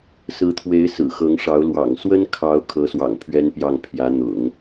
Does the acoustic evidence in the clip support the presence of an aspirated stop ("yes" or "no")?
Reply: yes